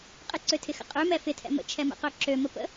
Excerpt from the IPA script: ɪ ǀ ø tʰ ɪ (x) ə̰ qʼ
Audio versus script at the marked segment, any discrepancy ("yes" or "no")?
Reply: no